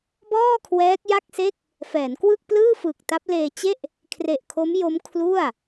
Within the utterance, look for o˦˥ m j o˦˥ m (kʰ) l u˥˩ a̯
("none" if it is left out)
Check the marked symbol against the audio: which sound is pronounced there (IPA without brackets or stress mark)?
kʰ